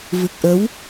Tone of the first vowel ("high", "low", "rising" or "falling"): low